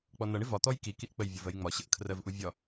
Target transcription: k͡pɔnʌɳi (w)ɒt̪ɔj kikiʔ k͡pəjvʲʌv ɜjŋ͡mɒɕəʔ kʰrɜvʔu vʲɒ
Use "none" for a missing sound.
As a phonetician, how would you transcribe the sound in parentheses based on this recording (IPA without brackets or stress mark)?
v